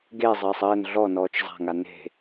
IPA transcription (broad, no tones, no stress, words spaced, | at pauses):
ɡezˤɘːsˤ ɘːn ɮɔnɔːt͡ʃ zˤa̤ŋa ne̤